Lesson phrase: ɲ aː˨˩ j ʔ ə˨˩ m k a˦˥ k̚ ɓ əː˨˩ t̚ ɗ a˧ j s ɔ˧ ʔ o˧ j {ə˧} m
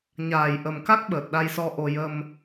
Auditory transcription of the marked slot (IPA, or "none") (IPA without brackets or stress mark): ə˧